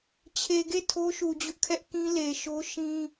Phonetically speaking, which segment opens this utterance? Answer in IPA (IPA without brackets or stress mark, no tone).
t͡ɕʰ